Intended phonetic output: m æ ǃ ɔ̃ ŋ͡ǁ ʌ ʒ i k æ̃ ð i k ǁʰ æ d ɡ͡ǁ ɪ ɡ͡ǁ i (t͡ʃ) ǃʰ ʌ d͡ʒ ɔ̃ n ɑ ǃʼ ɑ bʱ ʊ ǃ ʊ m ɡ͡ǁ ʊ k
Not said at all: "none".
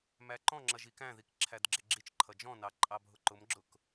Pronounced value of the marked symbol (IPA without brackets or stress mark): t͡ʃ